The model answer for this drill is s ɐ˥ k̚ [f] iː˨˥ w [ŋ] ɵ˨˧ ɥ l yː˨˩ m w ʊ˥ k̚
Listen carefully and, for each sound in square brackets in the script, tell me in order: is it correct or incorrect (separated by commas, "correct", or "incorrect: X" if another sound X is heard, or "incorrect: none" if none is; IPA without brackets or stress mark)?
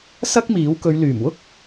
incorrect: m, incorrect: k